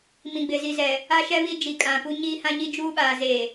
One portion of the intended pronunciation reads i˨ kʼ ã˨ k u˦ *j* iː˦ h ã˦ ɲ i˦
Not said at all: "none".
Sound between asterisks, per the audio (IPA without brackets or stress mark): ɲ